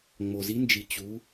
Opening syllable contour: low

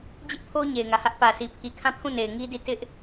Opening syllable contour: high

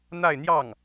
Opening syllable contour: falling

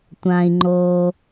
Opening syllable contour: low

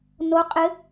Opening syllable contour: rising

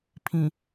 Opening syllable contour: low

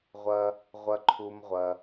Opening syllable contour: high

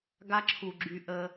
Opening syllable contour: high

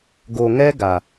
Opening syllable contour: low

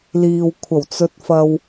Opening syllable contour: low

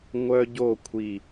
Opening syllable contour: high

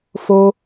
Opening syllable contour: low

